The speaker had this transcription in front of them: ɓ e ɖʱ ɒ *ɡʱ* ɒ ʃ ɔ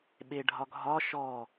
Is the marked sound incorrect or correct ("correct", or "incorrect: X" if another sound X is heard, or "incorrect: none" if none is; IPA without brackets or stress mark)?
correct